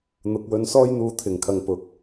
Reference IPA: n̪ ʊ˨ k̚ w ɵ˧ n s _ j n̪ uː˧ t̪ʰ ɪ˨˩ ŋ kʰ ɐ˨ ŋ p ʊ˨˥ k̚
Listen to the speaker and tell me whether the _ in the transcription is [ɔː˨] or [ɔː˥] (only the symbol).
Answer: ɔː˥